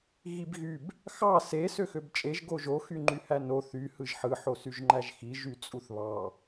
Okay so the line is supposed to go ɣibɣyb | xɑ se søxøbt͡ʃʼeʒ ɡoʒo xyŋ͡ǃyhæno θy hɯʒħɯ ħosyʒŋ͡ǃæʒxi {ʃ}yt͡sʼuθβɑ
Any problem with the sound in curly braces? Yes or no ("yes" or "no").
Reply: yes